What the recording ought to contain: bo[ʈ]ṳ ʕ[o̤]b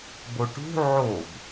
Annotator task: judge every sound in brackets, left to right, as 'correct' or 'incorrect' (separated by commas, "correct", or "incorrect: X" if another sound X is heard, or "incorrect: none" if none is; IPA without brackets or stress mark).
correct, incorrect: o